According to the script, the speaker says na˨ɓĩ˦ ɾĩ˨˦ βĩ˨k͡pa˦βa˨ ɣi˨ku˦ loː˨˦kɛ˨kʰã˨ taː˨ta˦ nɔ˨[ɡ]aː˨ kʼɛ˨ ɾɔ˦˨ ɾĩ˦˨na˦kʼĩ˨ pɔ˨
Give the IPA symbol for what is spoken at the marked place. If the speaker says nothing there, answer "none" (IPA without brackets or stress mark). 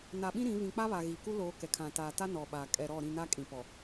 ɓ